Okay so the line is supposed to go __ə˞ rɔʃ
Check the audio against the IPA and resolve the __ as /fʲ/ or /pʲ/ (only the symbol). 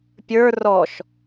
pʲ